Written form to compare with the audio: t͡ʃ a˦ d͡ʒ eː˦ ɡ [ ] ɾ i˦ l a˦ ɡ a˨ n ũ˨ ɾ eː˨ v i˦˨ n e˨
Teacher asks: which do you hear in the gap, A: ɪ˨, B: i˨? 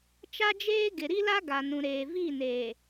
A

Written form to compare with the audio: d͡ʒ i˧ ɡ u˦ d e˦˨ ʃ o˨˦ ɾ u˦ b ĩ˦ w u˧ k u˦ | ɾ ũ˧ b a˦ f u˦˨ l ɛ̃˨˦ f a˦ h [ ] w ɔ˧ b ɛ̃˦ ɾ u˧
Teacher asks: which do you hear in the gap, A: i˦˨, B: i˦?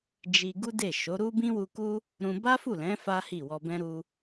A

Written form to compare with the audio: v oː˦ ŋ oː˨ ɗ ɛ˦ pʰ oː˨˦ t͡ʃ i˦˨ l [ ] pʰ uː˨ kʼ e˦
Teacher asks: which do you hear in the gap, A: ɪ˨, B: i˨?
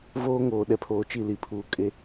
B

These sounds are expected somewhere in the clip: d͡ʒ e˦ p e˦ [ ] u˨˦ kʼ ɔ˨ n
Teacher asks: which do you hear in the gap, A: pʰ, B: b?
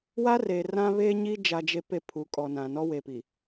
A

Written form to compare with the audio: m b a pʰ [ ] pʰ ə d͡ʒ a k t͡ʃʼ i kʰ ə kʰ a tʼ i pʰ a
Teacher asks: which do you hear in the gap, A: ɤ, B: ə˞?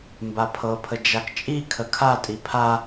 A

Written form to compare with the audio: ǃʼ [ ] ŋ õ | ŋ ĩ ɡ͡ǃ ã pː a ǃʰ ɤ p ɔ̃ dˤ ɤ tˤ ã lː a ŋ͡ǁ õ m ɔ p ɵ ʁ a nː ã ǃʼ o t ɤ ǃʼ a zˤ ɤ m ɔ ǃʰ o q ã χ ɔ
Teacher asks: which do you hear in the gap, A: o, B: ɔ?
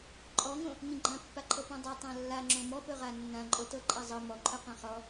B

